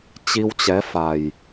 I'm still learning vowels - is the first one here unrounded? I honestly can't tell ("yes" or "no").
yes